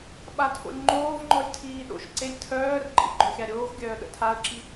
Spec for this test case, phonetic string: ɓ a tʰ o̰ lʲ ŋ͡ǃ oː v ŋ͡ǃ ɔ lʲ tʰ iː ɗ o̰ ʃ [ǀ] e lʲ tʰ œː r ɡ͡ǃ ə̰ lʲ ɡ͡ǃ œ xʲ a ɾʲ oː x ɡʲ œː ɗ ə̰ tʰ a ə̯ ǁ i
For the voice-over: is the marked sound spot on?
yes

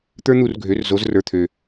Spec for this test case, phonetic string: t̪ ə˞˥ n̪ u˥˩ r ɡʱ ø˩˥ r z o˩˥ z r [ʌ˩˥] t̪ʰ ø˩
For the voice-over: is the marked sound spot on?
no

